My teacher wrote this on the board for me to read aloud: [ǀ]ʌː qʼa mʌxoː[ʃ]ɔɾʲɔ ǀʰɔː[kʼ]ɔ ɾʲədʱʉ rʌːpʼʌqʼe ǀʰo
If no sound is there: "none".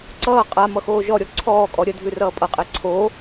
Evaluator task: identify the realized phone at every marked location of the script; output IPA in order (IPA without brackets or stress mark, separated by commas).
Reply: ǀ, ʒ, kʼ